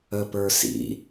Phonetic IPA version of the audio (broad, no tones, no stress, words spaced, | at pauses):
əpə˞sḭ